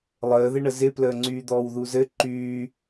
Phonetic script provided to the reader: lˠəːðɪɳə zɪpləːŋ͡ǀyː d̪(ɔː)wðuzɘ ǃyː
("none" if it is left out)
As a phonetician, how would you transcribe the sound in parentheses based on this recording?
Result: ɔː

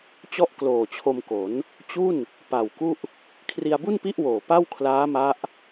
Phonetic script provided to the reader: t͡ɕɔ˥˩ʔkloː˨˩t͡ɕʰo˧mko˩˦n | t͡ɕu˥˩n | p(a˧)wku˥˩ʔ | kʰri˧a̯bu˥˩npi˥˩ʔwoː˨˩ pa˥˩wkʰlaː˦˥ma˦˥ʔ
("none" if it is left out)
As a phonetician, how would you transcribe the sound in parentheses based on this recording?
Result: a˨˩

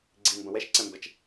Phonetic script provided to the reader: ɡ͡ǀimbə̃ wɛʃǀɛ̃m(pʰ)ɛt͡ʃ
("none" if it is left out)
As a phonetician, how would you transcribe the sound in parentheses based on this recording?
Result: b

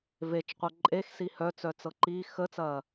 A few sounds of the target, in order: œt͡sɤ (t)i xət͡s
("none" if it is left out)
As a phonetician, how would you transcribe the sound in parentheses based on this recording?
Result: ǃ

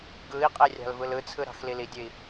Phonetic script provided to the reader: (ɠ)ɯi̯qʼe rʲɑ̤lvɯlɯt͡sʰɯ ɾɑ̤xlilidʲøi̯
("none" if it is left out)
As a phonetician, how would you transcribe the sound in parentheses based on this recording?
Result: ɡ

